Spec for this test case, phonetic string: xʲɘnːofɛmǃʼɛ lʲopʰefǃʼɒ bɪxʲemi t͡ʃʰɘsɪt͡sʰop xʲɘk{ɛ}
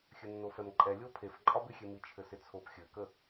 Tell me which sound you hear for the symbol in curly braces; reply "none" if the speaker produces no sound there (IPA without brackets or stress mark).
ə